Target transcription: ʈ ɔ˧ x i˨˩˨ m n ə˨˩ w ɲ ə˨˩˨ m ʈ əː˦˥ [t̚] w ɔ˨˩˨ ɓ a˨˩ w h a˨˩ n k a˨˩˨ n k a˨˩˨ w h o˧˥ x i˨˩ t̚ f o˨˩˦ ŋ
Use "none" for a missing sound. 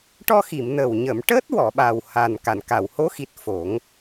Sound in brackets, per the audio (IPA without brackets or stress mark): t̚